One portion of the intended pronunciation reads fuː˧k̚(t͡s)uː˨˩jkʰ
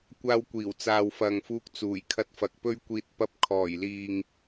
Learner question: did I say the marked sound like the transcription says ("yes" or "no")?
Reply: yes